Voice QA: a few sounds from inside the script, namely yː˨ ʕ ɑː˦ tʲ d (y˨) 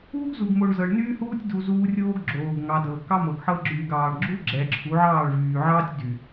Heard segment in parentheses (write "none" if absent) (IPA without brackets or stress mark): y˨